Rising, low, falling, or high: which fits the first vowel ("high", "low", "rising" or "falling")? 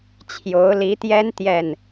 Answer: rising